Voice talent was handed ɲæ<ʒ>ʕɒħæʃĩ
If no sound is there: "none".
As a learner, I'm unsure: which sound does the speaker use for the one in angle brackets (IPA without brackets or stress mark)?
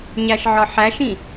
ʃ